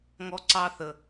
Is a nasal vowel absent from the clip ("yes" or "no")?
yes